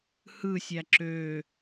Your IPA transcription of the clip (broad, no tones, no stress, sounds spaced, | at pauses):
h ɯ sʲ æ ǁ ø